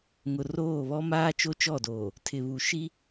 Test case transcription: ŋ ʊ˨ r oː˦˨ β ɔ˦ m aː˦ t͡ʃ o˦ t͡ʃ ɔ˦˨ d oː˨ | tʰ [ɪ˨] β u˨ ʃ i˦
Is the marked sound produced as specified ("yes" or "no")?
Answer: yes